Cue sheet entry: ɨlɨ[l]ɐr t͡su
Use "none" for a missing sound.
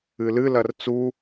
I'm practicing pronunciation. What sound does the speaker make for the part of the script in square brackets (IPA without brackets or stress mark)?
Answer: l